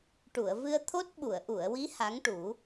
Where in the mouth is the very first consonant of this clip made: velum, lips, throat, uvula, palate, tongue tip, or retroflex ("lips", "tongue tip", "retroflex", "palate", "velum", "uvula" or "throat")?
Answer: retroflex